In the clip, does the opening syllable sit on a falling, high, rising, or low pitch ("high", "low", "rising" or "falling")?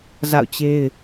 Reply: falling